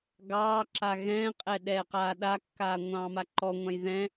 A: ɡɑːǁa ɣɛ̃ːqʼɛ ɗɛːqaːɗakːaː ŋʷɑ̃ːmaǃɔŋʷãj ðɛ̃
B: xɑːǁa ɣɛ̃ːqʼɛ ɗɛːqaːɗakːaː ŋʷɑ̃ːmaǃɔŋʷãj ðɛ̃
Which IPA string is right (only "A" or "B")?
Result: A